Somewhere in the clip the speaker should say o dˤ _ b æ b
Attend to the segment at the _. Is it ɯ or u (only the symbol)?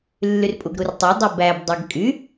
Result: ɯ